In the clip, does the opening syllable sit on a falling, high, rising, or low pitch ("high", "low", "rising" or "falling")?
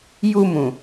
low